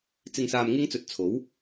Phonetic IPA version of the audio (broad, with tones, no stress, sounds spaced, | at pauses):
t͡s ɪ˨ ŋ s aː˨ m ŋ ɪ˧ ŋ t͡s ɵ˨ t̚ t͡sʰ o˨˥ w